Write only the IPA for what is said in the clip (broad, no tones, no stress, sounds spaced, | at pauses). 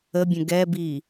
ə bʲ ə̃ ɡ ɛ b i